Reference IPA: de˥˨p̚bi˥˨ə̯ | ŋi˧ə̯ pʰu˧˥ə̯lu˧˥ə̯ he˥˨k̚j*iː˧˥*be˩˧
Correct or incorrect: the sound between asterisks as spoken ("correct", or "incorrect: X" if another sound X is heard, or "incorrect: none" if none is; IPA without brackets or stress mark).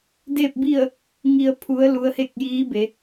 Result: correct